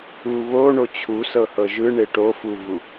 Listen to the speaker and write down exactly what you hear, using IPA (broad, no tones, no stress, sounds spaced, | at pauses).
u β o ɳ o t͡ɕʰ u s ɤ h ɤ ʒ ɯ ɳ e ʈ o f u v u